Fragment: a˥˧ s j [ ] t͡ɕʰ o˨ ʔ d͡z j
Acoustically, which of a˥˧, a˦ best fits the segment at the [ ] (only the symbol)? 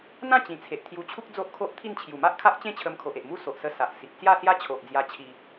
a˦